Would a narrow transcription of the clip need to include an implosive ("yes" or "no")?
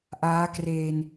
no